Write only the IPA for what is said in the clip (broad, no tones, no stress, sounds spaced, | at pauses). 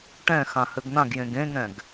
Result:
ʈ ɛ̃ x ã h ɘ ɡ n̪ ã ɡ j ẽ ɡ ẽ ŋ ɛ̃ ɡ